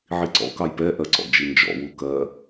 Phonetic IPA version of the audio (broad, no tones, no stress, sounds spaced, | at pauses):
ʕ i ǀ ɔ̰ k ɑ j p ɛ ʔ ɜ ǀ ɔ̰ d͡ʒ i n d͡ʒ ɔ̰ w u k ɜ